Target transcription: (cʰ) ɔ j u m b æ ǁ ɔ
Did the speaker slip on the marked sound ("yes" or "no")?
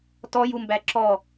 yes